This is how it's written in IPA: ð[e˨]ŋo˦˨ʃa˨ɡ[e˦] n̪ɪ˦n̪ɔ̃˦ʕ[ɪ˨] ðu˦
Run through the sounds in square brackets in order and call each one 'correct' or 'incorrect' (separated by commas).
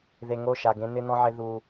correct, incorrect, incorrect